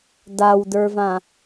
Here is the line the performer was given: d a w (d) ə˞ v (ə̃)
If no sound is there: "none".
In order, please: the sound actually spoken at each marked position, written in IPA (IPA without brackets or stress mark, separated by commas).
d, ã